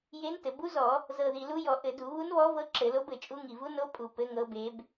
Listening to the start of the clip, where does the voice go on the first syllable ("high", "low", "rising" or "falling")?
rising